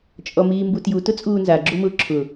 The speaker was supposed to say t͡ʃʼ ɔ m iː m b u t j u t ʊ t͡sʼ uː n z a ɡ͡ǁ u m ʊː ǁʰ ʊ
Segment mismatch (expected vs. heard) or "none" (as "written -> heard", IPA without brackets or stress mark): none